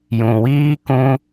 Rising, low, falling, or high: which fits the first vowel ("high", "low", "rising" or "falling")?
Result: low